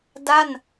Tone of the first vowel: falling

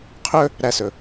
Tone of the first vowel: high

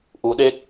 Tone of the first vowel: rising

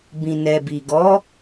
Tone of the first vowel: low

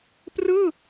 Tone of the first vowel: falling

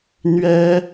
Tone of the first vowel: high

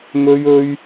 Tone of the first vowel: high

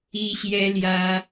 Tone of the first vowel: high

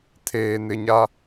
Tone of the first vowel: low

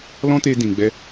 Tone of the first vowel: high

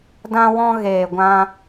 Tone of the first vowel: high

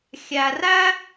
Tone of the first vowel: low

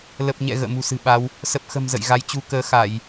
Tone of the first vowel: low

